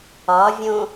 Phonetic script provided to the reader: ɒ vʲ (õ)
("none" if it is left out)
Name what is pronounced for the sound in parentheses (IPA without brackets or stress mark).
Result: õ